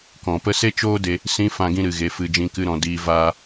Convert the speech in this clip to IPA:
kɔ̃˨pə˧ se˦t͡ʃoː˦de˧ | sĩ˧ fã˦ɡĩ˦ ɾɨ˨ ɣe˧fɨ˧d͡ʒĩ˦kɨ˦ ɾɔ̃˧ diː˦ vaː˦

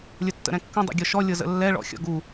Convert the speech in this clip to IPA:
lʲətːə̰ɾɛ̃kːə̃ dˤɛ̰ɡʲɔʃɔ lʲɤzə̰lːɛ ɭɔ̰xʲɔ̰ɡu

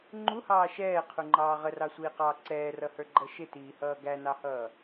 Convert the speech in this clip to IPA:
ŋ͡ǃuhɑː ʃɛːqʰuŋ͡ǃɑː ʁərɑsʷiːqɑː ǀɛːrʌhə˞ɡ͡ǃʌ ʃɪtiːhʌː ɡænɑhʌː

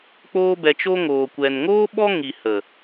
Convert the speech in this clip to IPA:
k͡poː˦bɛ˧t͡ʃo˦ ŋoː˨kʷɛ˨nŋoː˦ ɓɔ˦ ŋi˨ hə˨

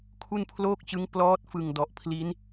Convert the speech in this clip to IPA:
kʰu˥˩npʰloː˥˩k̚t͡ɕɯ˦˥ŋ plɔː˦˥t̚fɯ˨˩ŋ dɔ˨˩ʔpʰli˦˥n

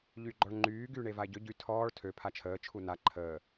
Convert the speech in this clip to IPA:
ʎyɡ͡ǃɔɭŋ͡ǃyː ɡyːɳevae̯ɟø ɟy tʰɔːɭ tʰø pʰat͡ʃʰəː t͡ʃʰuna ǃʰəː

